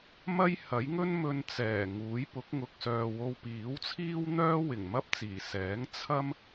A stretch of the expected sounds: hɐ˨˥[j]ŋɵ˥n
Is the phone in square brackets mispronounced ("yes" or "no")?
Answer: no